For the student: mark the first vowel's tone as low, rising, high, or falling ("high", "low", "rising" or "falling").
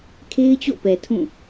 high